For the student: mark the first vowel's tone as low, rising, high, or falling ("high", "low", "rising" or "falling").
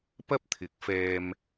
high